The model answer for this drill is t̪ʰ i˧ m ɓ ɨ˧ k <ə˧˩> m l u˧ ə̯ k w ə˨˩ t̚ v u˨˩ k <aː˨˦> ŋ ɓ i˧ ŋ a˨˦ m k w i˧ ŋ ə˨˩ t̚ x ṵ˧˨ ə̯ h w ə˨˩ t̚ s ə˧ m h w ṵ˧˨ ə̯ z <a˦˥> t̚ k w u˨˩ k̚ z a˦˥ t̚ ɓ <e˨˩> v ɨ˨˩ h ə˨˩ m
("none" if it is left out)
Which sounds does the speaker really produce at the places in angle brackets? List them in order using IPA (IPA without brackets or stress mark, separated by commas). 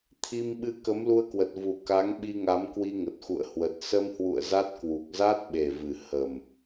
ə˨˦, a˨˦, a˦˥, e˨˩